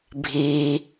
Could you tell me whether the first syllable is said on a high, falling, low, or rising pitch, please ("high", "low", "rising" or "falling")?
high